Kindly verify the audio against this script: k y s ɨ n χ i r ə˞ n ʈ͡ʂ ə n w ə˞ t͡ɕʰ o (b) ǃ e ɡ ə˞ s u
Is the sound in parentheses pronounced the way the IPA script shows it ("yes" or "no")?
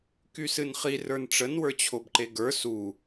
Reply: yes